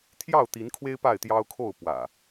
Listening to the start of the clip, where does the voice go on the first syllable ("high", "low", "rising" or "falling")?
falling